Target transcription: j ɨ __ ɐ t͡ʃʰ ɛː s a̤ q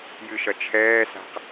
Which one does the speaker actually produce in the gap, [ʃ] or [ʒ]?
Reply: ʃ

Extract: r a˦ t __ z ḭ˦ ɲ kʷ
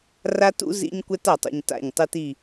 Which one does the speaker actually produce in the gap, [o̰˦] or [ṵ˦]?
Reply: ṵ˦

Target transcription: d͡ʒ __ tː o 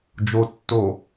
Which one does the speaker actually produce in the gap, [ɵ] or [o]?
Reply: o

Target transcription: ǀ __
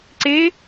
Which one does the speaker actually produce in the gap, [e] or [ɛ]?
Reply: e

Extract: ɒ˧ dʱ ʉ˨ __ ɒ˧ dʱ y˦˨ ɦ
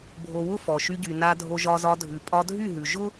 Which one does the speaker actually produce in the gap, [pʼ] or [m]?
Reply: pʼ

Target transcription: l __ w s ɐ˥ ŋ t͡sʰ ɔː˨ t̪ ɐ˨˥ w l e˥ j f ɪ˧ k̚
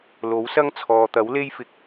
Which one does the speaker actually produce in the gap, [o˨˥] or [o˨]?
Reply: o˨˥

